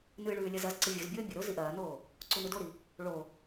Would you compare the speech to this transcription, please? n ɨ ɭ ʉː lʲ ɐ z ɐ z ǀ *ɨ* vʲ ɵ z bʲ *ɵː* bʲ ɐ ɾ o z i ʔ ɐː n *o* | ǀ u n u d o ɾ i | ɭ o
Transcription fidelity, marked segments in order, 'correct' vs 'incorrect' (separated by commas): correct, correct, incorrect